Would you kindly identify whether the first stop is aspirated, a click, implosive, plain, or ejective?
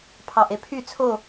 aspirated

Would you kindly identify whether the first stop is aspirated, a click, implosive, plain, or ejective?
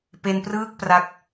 plain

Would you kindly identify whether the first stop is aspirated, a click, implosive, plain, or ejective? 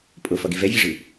ejective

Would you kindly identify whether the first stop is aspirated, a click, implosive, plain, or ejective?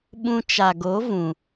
implosive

